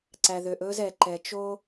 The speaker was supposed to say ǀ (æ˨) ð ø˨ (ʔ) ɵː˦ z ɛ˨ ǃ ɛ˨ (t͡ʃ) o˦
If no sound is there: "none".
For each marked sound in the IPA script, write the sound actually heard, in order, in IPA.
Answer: æ˨, ʔ, t͡ʃ

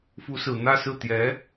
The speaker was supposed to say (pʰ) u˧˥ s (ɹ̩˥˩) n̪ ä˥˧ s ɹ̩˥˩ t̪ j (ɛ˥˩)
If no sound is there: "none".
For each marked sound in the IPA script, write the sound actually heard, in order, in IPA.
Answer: f, ɹ̩˨˩, ɛ˧˥

